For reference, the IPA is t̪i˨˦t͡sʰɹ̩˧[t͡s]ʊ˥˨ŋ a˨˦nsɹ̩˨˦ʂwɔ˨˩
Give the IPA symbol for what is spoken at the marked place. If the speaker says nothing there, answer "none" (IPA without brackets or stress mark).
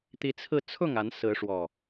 t͡sʰ